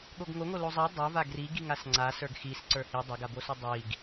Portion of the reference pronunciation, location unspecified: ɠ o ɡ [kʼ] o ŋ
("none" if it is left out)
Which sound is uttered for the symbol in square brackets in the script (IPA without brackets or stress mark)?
ŋ